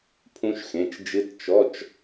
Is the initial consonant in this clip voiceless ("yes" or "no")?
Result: yes